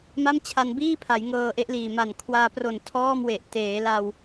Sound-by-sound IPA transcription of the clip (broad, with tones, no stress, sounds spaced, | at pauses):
m a˥˩ m t͡ɕʰ a˧ n b iː˥˩ pʰ a˩˦ j ŋ ɤː˧ ʔ e˦˥ ʔ l iː˨˩ m a˨˩ n kʰ w aː˧ p r o˨˩ n tʰ ɔː˥˩ m w e˨˩ ʔ t eː˩˦ l a˧ w